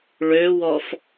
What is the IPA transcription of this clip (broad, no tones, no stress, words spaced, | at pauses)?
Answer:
ɭøwɔf